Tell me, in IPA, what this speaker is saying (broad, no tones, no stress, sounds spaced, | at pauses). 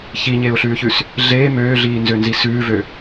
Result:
ç i ɲ eː ʊ̯ ɬ ʉː ç ʉ s | ɮ eː m øː ɮ iː n z ø n z i s ʉː v ø